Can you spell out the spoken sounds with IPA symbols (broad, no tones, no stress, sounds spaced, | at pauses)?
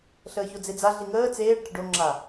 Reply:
ɬ əː ç o d͡z e d͡z a ɮ i ŋ əː t͡s eː ɖ ʈ ə ɖ o ŋ͡ǁ a